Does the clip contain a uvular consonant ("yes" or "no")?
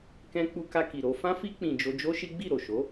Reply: no